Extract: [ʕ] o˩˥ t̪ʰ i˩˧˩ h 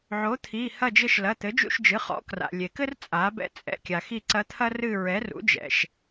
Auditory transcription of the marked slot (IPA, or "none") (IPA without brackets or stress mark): ʕ